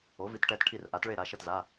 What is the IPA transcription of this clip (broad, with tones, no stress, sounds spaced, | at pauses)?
o˩˥ v i˩˥ t ʈ ɛ˩˧˩ t ʈʰ i˥˩ r ʔ a˩˥ t ɭ e˥˩ ɾ a˩˧˩ ʃ ʌ˥˩ t z a˩˧˩